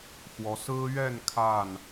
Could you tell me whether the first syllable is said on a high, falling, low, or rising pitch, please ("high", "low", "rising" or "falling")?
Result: rising